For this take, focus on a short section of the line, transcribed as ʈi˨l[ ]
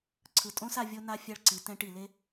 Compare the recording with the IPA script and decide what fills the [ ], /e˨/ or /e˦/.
e˦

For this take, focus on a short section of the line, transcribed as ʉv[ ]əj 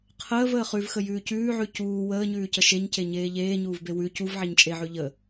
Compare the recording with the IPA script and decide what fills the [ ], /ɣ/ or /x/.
x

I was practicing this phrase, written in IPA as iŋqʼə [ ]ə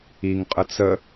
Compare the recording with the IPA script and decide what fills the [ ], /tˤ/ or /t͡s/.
t͡s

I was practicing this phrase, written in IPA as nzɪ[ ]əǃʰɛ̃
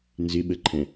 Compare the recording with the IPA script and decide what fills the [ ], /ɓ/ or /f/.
ɓ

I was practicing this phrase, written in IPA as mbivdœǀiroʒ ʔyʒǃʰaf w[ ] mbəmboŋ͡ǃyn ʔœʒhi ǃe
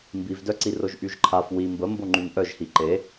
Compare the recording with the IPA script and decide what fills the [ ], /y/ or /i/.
i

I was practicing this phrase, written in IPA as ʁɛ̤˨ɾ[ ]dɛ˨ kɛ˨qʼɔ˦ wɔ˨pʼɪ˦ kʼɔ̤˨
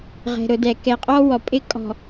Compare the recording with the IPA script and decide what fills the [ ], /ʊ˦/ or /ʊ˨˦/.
ʊ˨˦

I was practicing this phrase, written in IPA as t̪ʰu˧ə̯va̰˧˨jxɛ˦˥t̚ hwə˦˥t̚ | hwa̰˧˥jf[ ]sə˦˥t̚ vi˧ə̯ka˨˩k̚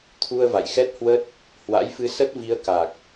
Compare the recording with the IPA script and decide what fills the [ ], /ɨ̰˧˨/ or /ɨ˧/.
ɨ˧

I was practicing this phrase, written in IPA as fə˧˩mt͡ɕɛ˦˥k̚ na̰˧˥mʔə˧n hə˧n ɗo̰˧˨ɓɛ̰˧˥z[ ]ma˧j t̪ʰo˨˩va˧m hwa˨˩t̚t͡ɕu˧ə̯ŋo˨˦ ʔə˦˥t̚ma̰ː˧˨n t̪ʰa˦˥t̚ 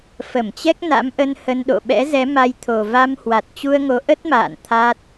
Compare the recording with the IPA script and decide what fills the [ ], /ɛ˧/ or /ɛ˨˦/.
ɛ˨˦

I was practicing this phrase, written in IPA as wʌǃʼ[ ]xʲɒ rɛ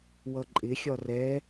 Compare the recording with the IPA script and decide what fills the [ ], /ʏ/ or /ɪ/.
ɪ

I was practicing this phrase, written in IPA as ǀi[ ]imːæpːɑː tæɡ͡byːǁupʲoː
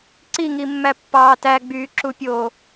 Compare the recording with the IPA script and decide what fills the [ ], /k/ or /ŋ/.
ŋ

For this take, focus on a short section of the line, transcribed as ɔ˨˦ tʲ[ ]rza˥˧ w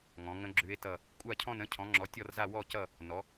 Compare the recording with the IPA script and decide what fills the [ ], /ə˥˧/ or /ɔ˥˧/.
ɔ˥˧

